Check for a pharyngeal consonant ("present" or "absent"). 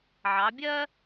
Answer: present